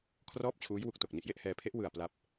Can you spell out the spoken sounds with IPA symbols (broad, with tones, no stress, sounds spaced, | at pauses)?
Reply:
kʰ r ɔː˥˩ p̚ t͡ɕʰ uː˦˥ j w u˦˥ k̚ t o˨˩ k̚ n i˨˩ ʔ j e˥˩ ʔ h ɛː˧ pʰ e˦˥ ʔ w ɯ˨˩ a̯ p l a˦˥ p̚